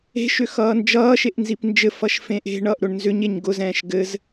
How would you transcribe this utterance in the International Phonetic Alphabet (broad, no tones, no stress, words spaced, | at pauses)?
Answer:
e̤ʃʏ xʌːnd͡ʒʌːʃeʔ nzipnd͡ʒɘfʌʃ fẽʔe̤ɳʌːʔ ɾʊɳnzʏɲeɲ ɡʊzɛ̃ːʃ ɡɘz